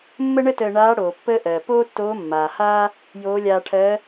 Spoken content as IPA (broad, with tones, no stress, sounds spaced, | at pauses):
mː ə˥ ɳ ə˥ t əː˧ ɳ aː˧˥ ɽ oː˩ pː əː˥ ʔ ɜː˩ p oː˥ tː oː˧˥ mː aː˩ h aː˥ | j oː˧˥ lʲ aː˧ ʈʰ ɜː˧˥